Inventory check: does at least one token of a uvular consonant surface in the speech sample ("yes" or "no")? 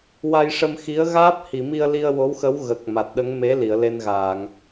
no